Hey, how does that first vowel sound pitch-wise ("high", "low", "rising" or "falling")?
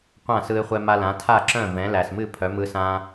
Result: falling